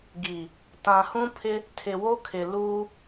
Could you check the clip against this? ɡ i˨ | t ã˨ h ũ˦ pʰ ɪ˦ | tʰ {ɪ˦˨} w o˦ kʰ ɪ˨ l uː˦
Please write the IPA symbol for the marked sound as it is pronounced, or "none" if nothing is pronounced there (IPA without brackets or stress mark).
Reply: ɪ˨